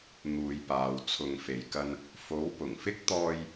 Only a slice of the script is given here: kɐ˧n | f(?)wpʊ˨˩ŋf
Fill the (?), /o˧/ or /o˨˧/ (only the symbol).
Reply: o˨˧